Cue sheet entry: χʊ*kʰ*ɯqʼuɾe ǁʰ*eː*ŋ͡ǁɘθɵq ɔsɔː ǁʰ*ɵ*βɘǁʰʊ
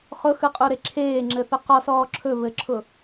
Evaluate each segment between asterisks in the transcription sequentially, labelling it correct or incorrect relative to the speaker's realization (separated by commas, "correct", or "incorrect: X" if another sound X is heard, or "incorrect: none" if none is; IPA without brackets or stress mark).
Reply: incorrect: x, correct, correct